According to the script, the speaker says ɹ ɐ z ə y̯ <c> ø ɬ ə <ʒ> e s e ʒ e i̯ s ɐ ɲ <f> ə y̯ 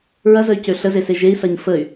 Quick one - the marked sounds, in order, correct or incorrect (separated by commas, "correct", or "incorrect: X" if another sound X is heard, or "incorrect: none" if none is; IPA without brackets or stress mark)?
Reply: correct, incorrect: z, correct